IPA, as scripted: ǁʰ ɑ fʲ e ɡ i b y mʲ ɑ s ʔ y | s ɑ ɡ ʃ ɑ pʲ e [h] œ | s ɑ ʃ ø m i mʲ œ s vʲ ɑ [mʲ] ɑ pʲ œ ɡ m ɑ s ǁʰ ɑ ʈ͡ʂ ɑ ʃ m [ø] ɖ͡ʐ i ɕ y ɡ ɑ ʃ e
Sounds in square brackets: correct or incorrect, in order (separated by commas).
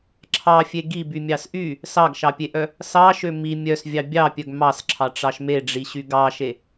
incorrect, incorrect, incorrect